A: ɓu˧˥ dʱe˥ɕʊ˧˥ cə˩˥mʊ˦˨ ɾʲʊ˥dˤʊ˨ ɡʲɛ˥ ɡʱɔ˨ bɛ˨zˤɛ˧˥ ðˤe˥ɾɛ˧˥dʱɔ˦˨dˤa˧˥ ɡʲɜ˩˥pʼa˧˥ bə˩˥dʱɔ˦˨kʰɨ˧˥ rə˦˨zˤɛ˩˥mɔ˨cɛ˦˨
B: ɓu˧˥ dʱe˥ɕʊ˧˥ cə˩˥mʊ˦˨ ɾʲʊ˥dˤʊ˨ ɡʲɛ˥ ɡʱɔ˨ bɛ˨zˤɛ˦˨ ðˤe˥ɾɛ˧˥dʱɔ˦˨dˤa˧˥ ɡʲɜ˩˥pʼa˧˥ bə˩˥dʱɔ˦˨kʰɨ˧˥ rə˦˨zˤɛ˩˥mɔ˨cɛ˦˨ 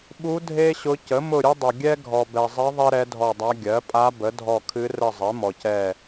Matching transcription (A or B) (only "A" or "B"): A